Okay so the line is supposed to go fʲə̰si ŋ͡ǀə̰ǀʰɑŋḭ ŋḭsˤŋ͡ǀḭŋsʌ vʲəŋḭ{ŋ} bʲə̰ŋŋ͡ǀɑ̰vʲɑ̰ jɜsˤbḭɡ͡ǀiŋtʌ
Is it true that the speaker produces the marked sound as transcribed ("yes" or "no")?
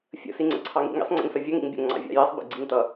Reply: yes